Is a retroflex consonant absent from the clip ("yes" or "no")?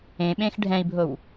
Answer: no